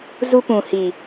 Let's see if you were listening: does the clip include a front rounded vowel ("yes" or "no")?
no